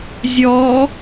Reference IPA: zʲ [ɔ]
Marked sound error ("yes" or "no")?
no